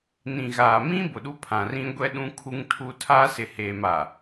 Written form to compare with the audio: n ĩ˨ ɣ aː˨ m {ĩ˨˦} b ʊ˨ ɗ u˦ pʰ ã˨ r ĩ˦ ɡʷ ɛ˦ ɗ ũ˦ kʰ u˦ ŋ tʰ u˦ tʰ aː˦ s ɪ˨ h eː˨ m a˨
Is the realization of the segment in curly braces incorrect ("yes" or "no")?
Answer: yes